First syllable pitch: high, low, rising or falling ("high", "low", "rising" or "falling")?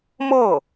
falling